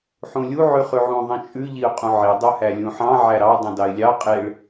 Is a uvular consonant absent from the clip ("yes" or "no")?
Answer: no